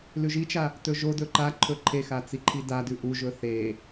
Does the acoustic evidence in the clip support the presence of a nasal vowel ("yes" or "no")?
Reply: no